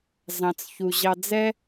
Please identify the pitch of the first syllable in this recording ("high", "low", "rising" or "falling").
low